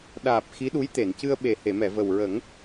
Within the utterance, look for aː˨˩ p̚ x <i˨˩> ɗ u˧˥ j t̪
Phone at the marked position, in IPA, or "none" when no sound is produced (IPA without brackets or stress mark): i˧˥